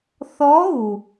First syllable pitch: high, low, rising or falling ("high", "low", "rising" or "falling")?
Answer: rising